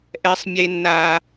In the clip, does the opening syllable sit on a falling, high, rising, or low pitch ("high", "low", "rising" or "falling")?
high